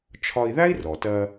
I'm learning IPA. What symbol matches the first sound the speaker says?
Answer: t͡ʃʰ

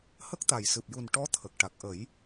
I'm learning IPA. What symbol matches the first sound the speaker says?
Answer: h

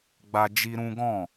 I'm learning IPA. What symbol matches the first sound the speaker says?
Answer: ɡ͡b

